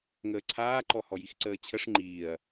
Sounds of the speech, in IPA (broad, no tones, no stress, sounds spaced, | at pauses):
ŋ əː ǀʰ aː ǃ ɔ h ɔ j i x ǀ əː t͡ɕʰ ə ʂ ŋ͡ǃ iː ɐ̯